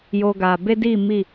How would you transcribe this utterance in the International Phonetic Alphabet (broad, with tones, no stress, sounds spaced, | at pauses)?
j oː˧ ɡ aː˨ b e˦ d i˦˨ m i˦˨